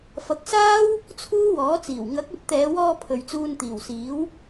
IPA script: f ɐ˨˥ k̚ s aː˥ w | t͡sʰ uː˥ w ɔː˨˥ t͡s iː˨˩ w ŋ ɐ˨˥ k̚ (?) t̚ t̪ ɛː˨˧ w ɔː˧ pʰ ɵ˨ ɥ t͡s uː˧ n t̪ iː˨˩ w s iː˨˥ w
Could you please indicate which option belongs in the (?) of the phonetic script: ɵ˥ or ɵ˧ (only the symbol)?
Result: ɵ˧